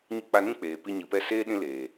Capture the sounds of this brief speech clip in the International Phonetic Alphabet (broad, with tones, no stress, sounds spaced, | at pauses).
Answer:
ɲ ɨ˧ k͡p a˧ n ĩ˦ k͡p eː˨ p i˧ ɲ ɨ˨ p ɛ˦˨ s eː˦ ɗ ĩ˦ l eː˨